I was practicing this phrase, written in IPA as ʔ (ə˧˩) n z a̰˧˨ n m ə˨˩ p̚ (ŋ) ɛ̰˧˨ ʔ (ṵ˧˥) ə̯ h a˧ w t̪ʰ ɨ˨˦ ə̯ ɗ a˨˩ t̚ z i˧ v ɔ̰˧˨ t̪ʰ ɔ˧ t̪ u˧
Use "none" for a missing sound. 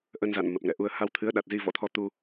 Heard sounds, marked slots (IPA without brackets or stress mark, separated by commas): ə˧, ŋ, u˧